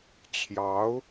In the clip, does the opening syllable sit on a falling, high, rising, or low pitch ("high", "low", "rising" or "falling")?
rising